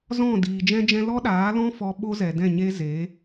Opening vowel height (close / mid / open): mid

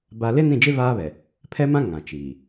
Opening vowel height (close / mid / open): open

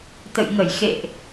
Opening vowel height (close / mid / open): mid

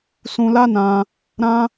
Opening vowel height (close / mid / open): close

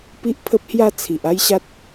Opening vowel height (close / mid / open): close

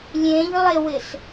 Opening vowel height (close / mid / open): mid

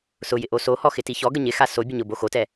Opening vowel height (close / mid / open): close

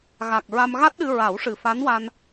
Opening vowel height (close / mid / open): open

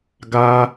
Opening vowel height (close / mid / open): open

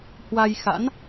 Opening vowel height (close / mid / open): open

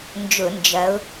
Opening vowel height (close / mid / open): close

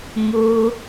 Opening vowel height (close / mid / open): close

